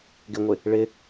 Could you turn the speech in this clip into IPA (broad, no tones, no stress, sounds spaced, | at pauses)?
ɡ ɪ ŋʷ ɪ | ɭ ɪ